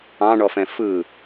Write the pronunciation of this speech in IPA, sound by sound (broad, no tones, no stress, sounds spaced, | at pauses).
ɑ̃ ɳ ɔ f ɛ̃ f ɯ